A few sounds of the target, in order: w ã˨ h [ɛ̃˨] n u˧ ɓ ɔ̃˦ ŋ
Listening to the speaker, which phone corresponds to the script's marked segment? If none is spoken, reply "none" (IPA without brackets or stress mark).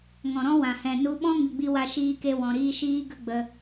ɛ̃˨